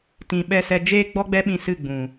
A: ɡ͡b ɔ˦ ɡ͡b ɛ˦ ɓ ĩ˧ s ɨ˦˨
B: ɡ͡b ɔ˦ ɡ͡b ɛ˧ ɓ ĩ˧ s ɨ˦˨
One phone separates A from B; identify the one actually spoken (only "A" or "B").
A